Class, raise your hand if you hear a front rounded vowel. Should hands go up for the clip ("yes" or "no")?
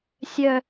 yes